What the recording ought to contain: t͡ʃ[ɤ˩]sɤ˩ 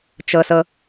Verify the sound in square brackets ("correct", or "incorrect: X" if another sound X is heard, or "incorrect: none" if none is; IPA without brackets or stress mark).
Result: correct